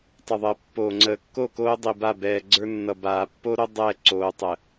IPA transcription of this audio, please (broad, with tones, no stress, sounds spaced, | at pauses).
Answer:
tˤ ʌ˨ ðˤ əː˨ pː oː˨ ŋ͡ǀ əː˨ kː o˦˨ k oː˦ dˤ i˨ b a˦˨ b ɛː˨ ɡ͡ǀ ə˞˦ nː ʌ˨ b aː˨ pː o˦ ɾ o˦ dˤ ɛ˦˨ ǀ oː˨ tˤ ə˨